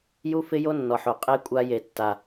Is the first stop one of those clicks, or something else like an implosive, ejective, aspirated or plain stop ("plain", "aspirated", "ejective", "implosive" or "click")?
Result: ejective